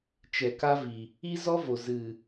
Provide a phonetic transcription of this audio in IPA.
t͡ʃ ɛ˨ k a˦ v i˨ | i˦ z ɔ˦ v o˨ z ɨ˨

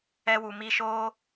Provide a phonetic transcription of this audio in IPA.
ɛ˦ w u˧ m i˦ ʃ o˦

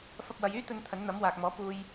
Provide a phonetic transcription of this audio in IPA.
f ɐ˧ p̚ w ɐ˨˧ j yː˥ t̪ ɵ˧ n t̪ʰ ɐ˨˥ n n̪ ɐ˨˥ m w aː˨ k̚ m ɔː˨˥ p uː˧ j

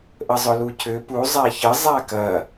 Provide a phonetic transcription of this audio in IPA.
ʔ ə zˤ ʊ l u cʰ ʏ p u zˤ a ç ə zˤ a k ɐ

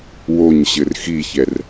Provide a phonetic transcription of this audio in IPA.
w o ɲ ɕ ɘ r x i ç ɛ r

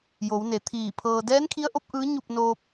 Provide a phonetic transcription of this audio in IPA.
j o˩˧ w n e˩˧ t̪ʰ iː˧˩ pʰ ɤː˧ d ɛː˧˥ n kʰ i˧˥ ə̯ ʔ o˧˥ p̚ ʔ ɯː˧˥ ɲ u˥˨ p̚ n oː˧ p̚

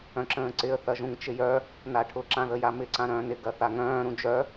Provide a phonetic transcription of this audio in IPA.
œ̃ ǁ ə̃ː ǀ ɪ ə̯ θ ɐ ʒ ũ ŋ t͡ʃ ɪ j œ | n a ʈʰ ʊ ǁ ã ð ə j a m ɪ ǀ ã ɾ œ̃ː n ɪ ɡ ɐ θ a ŋ œ̃ː ɾ ũ d͡ʒ œ

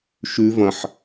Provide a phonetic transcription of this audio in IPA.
ʃ ʉ v ɐ̃ ħ

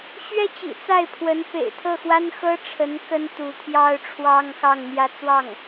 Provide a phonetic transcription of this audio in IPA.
ɕ ɥ ɛ˥ t͡ɕ ḭ˨˩ t͡s a˥˩ ɪ̯ pʰ w ə˧˥ n p ḛ˨˩ ɪ̯ t̪ʰ ɤ˥˩ x w a˥ n x ɤ˥ ʈ͡ʂʰ ə˧˥ n k ə˥ n t̪ u˧˥ t̪ʰ j ɑ˥ ʊ̯ ʈ͡ʂʰ w ɑ˥ ŋ x ɑ˥˩ ŋ n̪ j ä˥ t͡s w ɑ˥˩ ŋ

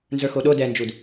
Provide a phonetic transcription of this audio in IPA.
n z ə˞ x o ɗ o d ɛ n d͡ʒ u d

